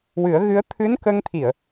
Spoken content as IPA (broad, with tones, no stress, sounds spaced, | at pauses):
w ɨ˨˩˦ ə̯ ɣ ɨ˧˥ ə̯ t̪ʰ ɨ˧˥ n k ə˧ ŋ t̪ʰ i˨˩˨ ə̯